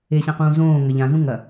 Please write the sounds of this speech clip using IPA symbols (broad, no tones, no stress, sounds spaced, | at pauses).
e ɕ ã q ũː z õː ŋ ɐ ʎ ã z ũ ŋ ɐ